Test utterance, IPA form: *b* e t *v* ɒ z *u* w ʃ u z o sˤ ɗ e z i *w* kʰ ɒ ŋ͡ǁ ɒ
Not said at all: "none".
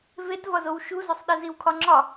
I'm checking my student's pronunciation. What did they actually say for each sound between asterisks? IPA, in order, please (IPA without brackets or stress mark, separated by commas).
v, v, o, w